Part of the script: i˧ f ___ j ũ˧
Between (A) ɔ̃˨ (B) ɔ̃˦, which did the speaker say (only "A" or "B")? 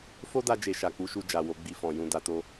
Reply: A